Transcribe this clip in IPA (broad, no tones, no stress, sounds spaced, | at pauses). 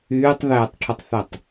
yː tˤ ð ɛː tˤ ʈʰ o tˤ θ ɛ tˤ